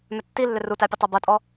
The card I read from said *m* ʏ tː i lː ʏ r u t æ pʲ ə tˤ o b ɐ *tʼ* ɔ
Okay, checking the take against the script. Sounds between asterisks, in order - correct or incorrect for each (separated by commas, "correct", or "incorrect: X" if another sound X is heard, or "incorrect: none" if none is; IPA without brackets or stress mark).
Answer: correct, correct